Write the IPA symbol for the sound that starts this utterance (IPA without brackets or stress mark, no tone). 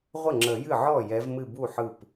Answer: ʁʷ